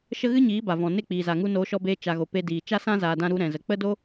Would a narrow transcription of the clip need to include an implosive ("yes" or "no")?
no